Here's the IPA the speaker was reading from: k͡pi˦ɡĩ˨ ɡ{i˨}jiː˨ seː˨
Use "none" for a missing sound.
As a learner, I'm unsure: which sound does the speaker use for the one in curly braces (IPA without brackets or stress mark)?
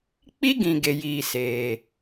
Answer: e˨